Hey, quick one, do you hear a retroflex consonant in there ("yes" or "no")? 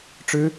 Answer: yes